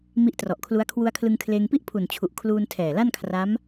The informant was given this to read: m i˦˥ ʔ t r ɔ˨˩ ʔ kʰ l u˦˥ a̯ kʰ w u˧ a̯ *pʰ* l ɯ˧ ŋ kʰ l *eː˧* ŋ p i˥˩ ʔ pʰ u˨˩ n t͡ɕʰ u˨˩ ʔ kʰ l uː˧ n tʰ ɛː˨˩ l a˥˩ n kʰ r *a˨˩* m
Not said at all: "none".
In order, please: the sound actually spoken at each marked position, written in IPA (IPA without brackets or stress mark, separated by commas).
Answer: kʰ, eː˧, a˦˥